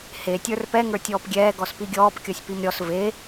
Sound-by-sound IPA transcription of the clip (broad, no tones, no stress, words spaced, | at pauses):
he tʲə˞rpɛ ŋə˞tʲɔːpɡʲɛː ɡɔspiɡʲɔːp kʲɔsʲpimɾʲɔs ve